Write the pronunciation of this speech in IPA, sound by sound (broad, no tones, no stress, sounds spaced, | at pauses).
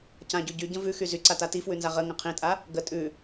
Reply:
c ã ɟ ʉ ɟ y ɟ ə̃ v ʉ x y z y ǀ a t a t i f w ʉ n z a ʁ ə ŋ ə̃ qʰ ĩ tʼ a | ɡ ə tʼ ʉ